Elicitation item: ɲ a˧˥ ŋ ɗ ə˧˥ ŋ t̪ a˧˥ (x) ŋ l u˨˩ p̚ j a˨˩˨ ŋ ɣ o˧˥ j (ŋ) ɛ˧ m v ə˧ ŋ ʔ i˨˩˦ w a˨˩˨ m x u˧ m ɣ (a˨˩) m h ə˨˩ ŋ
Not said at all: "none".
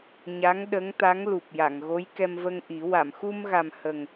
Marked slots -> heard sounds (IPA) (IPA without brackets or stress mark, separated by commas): none, k, a˨˩